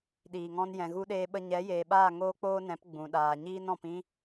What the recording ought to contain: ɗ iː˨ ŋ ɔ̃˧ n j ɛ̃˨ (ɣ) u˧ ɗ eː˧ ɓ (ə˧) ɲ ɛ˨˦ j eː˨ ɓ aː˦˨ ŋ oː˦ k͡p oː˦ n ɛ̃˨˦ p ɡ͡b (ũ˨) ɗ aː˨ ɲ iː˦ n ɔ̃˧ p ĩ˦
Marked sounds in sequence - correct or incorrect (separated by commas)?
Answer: correct, correct, correct